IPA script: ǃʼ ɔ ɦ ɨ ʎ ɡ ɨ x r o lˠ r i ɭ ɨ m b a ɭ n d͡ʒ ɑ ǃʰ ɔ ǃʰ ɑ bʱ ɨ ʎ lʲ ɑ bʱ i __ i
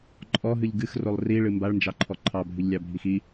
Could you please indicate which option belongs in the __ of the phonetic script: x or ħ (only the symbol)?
x